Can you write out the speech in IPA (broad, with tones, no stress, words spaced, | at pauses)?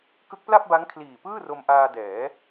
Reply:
kɯ˦˥k̚pla˥˩p̚ba˦˥ŋ kʰliː˨˩pɯː˥˩ro˧mʔaː˧ dɛː˩˦